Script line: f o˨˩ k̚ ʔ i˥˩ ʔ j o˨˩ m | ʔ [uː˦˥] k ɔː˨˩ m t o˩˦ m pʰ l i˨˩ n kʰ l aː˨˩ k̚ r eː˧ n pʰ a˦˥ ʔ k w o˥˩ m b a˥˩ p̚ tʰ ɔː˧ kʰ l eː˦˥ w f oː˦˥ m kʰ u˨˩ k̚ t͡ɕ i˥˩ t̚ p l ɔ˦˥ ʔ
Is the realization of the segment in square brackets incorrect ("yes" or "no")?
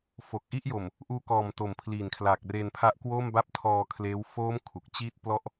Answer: yes